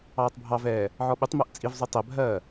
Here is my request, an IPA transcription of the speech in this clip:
ɑː tˤ bʱ ɑ v ɛː | ʕ ɔ ɓ ʉ tˤ m ɜ ʔ t͡sʼ i v zˤ ʉ tˤ ɛ bʱ ɜː

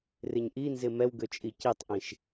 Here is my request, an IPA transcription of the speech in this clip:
r ɪ ɲ ʔ i n z ɪ m ɛ w ɡ ø t͡ʃʼ i c i tˤ ʔ ĩ ʃ

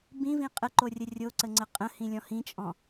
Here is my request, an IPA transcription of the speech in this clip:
b ĩ v ĩ qʼ ə ǃ o rʲ ə rʲ o ǀ ə ŋ͡ǀ ə qʼ ə̃ h ĩ lʲ ɔ̃ h ĩ t͡ʃʼ ɔ̃

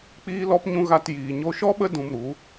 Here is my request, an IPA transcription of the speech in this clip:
k͡p iː˦ l ɔ˦ p ɲ ũ˦ ɣ a˧ t j iː˨ ɲ o˧ ʃ ɔ˦ ɓ ə˦ d ũ˧ m ɾ u˨˦

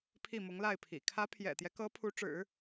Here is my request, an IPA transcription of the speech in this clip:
pʰ i˥˩ m ʊ˧˥ ŋ l a˥˩ ɪ̯ pʰ ḭ˨˩ kʰ ä˧˥ pʰ j ɛ̰˨˩ t̪ j ɛ˦ k ɤ˧˥ pʰ u˧˥ ʈ͡ʂ ɻ̩˨˩˦

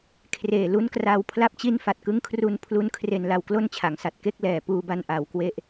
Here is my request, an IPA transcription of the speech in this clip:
kʰ r eː˨˩ l u˦˥ n k r a˧ w pʰ l a˥˩ p̚ t͡ɕ i˥˩ n f a˨˩ t̚ k ɯ˦˥ ŋ kʰ r u˧ n pʰ l u˦˥ n kʰ r e˧ n l a˧ w k l o˥˩ n t͡ɕʰ a˩˦ ŋ s a˨˩ t̚ k e˥˩ k̚ l ɛː˨˩ p uː˧ b a˧ n ʔ a˩˦ w k w e˦˥ ʔ

